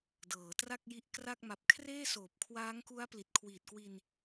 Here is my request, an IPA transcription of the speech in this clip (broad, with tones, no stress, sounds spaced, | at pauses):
d ɤː˩˦ t r a˥˩ k̚ j i˦˥ ʔ k r a˥˩ k̚ m a˨˩ p̚ kʰ r eː˥˩ s oː˨˩ p̚ kʰ w aː˦˥ ŋ k u˦˥ a̯ p l i˨˩ t̚ kʰ w iː˨˩ t̚ k w i˧ n